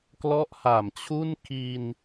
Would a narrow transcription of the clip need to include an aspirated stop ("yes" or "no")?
yes